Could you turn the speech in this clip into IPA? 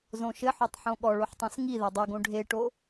zõʃɘħotˤ ħõɠɔ ɭoħtˤõsŋi ðɛdˤoɡõ ɖʱeʈo

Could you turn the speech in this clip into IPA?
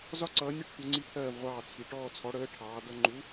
zɒ˥ǀʌː˨˥ nʲʌ˥ʈ tʷɜ˨˥ŋ͡ǀi˥pʰɜː˥˨v ʁʷɑː˥˨t͡sʰi˨˥ ʈɔː˥˨ t͡sʰɔ˨˥ɽəː˨˥ ʈʰɑː˨˥dʌ˥ ŋ͡ǃu˨˥

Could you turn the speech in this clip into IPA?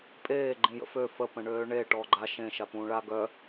pʼeː ɡ͡ǃĩjə̰fø fə pə̃ɳøːɳe ʈɔːɡ͡ǃa ʃẽ ʃapũːɭa ɡœ

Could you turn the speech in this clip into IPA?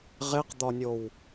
ʁeqd̪ɒnʲow

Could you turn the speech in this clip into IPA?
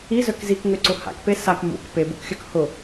izœk zikŋøǀʊ ha̰kpe sak mṵk pebṵkxʲœk hʊ

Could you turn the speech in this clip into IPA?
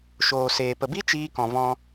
ʃoː˨seː˨ pə˨bi˦ t͡ʃiː˧kɔ̃˨vɔ̃˧

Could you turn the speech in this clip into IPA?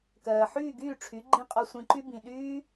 kɜː˨ħyː˦˨ɡyː˦˨ʈ͡ʂʰy˨˦ ɡ͡ǃĩ˦ qʼɔ˧sʷĩ˧ǃy˦ bĩ˨ɗyː˦

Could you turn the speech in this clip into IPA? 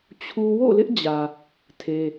t͡ɕʰu˦ wo̰˦˨lɪ˦ʔd͡ʑä˨ | tʰe˦

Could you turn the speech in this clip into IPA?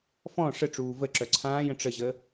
fɔ̃ ʂəʈ͡ʂuː vəǁœ ǀʰãːjə̃ ʈ͡ʂəʑə

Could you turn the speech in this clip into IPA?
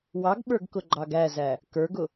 wɑɡɓə˞ɡkʊɡ͡ǃɑɡ æzæ | kə˞ɡʊ

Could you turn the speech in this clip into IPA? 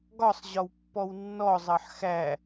ɡɒsˤ ʑɒwpːɔwnːɔ zˤɑħxæ

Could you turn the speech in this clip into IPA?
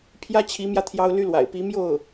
pʰjä˥t͡ɕʰi˧˥mjä˧ t̪ʰjɑ˥ʊ̯ly˥lwa̰˨˩ɪ̯ pi˧˥mjo˥˩ʊ̯

